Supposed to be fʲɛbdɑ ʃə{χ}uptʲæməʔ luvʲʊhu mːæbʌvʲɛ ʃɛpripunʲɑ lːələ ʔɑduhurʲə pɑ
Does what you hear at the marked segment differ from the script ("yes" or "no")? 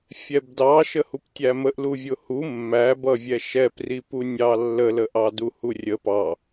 yes